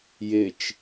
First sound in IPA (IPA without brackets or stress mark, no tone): j